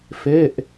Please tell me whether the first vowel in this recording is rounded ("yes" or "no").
no